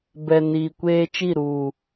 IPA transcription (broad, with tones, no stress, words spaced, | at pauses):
bɛ˨niː˨kʷeː˦ t͡ʃi˦˨ɾuː˨